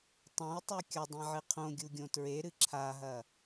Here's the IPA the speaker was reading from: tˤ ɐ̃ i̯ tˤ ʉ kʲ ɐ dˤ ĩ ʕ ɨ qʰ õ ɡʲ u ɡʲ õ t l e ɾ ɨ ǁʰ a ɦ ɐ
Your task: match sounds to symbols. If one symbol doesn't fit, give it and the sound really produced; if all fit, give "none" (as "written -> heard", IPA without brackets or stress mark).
l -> ɹ